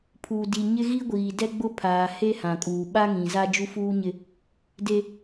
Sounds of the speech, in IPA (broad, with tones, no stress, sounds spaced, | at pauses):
pʰ u˨ d i˨ ɲ ɪ˦ ɣ i˦ ɡʷ iː˨ d ɛ˦ ɡ͡b ʊ˦ pʰ aː˨ h e˦ h ã˨ kʼ uː˨ ɓ a˦ ŋ ĩ˨ z a˦ d͡ʒ u˦ f uː˦ ɲ ɪ˦ | d e˦